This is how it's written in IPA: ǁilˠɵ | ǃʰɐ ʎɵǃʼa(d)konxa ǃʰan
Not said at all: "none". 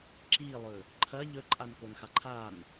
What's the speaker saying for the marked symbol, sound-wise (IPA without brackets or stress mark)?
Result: n